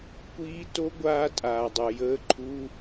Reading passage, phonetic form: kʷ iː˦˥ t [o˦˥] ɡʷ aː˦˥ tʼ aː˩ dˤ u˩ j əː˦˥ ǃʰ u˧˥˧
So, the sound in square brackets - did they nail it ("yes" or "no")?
yes